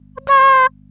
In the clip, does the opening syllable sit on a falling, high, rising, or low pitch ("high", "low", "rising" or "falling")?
high